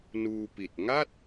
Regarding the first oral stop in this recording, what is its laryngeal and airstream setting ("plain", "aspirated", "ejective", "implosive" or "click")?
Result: plain